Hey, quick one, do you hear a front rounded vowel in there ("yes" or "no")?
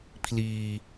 no